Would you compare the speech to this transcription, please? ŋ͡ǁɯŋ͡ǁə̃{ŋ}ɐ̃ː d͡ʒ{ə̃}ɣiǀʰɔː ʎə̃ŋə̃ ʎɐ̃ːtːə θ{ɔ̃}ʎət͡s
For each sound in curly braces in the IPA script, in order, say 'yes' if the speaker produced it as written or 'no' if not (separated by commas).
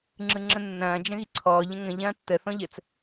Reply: no, yes, yes